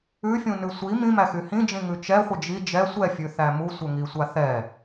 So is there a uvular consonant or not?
yes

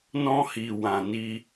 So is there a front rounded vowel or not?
no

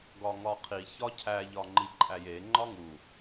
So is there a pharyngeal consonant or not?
no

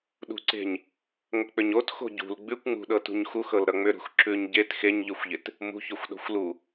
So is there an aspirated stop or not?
no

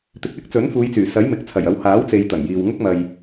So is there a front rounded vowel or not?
yes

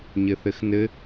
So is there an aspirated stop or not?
no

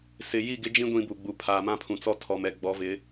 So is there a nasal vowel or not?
yes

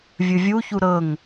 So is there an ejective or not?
no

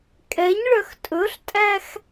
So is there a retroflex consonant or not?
yes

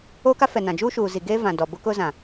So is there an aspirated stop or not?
no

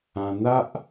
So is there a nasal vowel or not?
yes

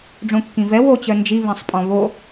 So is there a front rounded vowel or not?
yes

